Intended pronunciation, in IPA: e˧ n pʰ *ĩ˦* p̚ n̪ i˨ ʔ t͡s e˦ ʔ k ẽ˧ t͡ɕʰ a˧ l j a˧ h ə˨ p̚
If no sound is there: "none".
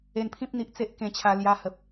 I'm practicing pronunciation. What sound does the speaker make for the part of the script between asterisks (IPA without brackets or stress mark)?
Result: ĩ˦